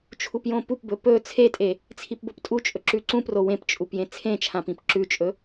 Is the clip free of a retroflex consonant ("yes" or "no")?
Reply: yes